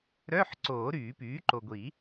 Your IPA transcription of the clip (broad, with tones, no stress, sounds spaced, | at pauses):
ɾ œ˧˥˧ ħ ǀ oː˨˩˦ ɾ yː˨˩˦ p yː˩˥ ǃ o˨ ɡʷ i˨˩˦